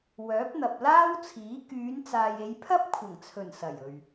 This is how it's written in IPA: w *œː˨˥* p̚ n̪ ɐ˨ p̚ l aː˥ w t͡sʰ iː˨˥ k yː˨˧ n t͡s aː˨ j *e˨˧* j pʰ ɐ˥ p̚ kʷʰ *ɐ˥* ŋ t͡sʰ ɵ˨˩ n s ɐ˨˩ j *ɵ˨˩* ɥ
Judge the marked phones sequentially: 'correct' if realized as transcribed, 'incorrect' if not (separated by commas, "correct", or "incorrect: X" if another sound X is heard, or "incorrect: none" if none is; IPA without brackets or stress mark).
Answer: correct, correct, incorrect: ɐ˨˩, incorrect: ɵ˨